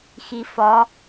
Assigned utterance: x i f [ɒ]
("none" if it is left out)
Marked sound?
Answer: ɒ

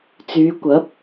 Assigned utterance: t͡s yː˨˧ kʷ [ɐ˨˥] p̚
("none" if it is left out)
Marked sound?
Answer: ɐ˨˥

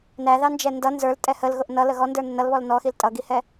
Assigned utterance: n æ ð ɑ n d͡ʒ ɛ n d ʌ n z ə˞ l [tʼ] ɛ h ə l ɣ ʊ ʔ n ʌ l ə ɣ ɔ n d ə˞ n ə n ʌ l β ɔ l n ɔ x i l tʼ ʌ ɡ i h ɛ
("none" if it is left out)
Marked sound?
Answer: tʼ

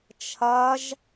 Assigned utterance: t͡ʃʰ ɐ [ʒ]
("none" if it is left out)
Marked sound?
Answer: ʒ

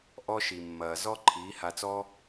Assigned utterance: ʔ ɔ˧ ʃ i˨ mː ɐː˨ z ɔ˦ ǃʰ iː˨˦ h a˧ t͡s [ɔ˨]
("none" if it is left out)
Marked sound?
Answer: ɔ˦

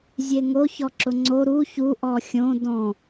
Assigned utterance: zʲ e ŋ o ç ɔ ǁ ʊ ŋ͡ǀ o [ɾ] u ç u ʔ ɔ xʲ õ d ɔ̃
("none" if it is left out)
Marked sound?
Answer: ɾ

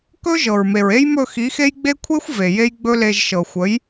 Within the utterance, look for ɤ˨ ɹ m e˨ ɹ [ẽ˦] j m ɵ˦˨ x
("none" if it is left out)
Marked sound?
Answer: e˦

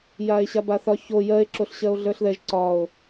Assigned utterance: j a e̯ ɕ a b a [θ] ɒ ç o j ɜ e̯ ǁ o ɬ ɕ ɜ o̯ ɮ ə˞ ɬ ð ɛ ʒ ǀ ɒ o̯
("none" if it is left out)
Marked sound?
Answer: θ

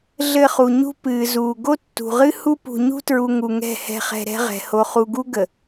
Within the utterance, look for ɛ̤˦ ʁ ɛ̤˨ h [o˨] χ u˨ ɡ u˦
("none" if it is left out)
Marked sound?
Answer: o˨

